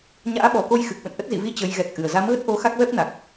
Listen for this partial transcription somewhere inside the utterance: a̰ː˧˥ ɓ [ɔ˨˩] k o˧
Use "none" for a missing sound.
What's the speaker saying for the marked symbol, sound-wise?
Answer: ɔ˨˩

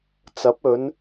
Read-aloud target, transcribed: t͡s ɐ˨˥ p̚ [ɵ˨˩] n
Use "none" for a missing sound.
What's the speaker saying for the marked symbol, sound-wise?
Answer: ɵ˨˧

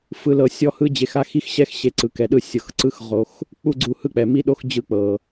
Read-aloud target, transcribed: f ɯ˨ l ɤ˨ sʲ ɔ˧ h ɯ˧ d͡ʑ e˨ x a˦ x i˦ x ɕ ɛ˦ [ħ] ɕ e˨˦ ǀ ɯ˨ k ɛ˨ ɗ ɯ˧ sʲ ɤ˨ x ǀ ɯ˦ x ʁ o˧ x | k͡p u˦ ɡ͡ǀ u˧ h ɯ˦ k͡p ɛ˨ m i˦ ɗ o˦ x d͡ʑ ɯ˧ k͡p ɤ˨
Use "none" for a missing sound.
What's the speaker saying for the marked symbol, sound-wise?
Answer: x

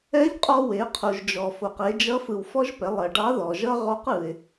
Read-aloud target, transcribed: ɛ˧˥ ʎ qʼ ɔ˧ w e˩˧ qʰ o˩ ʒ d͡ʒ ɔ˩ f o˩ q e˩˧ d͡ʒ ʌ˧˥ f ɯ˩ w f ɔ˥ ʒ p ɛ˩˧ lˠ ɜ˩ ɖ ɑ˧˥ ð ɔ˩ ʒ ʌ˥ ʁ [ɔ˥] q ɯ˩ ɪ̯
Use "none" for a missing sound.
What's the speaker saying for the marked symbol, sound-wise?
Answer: ɔ˧˥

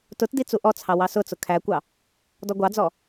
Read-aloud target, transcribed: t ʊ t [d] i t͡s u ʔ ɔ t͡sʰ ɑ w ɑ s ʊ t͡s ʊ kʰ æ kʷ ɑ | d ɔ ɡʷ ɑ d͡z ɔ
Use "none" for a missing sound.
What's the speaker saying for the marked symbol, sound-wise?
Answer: d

